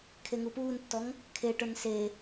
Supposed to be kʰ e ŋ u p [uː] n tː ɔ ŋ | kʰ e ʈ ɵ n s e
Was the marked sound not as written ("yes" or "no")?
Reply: no